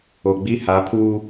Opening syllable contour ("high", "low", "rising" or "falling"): low